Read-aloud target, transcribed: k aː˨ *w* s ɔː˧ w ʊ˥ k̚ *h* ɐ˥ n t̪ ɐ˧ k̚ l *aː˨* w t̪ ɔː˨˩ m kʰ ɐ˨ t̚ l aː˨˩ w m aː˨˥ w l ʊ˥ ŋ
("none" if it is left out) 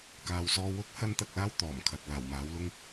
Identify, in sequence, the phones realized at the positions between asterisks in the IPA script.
w, h, aː˥

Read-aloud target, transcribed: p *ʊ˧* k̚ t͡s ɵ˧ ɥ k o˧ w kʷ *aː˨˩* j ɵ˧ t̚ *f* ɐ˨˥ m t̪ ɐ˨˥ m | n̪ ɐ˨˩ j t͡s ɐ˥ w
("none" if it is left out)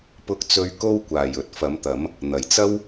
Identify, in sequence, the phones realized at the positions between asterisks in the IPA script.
ʊ˧, aː˨˩, f

